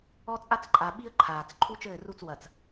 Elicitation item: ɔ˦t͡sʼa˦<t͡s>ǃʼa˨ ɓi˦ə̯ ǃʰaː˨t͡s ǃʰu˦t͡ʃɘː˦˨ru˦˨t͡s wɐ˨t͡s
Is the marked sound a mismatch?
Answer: no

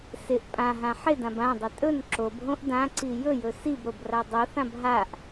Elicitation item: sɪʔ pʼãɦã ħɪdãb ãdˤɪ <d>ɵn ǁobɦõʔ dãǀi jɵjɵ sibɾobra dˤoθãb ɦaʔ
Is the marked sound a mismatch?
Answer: yes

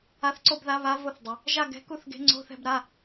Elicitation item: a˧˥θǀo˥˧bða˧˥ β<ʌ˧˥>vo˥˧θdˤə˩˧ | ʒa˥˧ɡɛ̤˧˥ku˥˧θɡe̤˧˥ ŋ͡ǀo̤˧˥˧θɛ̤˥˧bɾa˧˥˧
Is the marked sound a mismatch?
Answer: yes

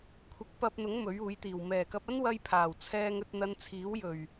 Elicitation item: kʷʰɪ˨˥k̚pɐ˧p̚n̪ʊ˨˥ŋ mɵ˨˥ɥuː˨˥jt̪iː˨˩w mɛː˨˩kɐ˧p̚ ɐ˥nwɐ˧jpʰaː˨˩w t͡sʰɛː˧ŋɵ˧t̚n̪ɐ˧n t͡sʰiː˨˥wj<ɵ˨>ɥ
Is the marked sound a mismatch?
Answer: yes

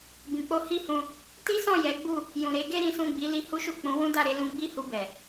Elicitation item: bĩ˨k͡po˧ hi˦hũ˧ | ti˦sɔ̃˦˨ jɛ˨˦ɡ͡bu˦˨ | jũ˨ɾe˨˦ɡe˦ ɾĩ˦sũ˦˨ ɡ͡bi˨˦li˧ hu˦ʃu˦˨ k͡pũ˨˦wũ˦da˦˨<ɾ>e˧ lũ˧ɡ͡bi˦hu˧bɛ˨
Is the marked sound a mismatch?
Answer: no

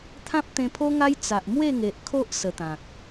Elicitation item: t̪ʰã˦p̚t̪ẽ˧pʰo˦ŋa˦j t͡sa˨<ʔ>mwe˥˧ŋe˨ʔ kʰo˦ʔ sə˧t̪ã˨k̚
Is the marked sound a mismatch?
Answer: no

